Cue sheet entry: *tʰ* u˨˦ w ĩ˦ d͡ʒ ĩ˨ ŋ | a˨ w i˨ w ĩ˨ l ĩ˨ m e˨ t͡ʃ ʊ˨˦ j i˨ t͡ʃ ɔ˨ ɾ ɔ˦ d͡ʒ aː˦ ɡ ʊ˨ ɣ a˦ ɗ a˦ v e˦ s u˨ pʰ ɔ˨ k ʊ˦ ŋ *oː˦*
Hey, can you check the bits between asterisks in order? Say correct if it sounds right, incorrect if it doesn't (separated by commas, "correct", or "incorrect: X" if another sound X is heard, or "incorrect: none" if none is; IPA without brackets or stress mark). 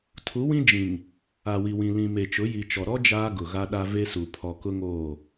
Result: correct, incorrect: oː˦˨